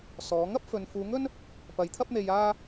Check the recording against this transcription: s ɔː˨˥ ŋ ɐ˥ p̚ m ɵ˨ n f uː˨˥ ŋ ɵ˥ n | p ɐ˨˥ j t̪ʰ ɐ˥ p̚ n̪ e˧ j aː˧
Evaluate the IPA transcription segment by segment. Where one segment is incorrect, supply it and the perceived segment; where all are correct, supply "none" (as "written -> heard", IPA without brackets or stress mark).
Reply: m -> f